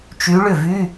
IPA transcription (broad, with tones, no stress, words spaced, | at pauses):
t͡ʃy˧˥ɭʏ˥˩vy˧˥˧